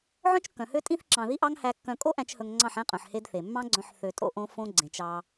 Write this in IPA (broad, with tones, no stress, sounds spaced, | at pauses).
ʕ œ̃˦ t͡ʃ kː œ̃˨ h ø˦ tʼ ĩ˦ θ ǁ ɑ̃˨ ð i˦ ʔ ɑ˦ ŋ h æ˧ kː œ̃˧ kʼ o˦ ʔ æ̃˧ t͡ʃ h ɵ˧ ŋ ŋ͡ǀ ɑ̃˦˨ ħ æ̃˦ qʼ œ̃˨ ħ h e˦ d θ e˨ mː ɑ̃˦ ɡ͡ǀ œ̃˧ ħ θ ø˧ tʼ o̰˦ ʔ õ˦ f õ˦ ɡ͡ǀ ẽ˨ t͡ʃ ɑ˧